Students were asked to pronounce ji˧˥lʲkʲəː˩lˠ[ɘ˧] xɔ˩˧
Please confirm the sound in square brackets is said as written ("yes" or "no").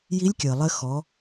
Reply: yes